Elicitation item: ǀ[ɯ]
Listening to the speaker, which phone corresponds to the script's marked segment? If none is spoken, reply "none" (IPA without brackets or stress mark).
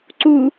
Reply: u